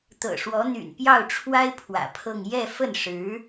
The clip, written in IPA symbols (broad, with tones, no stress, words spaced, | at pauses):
t̪ɤ̰˨˩ʂwɔ˧˥n̪y̰˨˩n pjɑ˥˩ʊ̯ʈ͡ʂʰwa˥ɪ̯ pʰwä̰˨˩pʰɤ˥˧ŋ jɛ˥˧fə˥˩nʂɻ̩˧˥